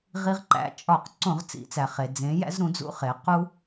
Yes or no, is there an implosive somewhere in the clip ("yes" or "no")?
no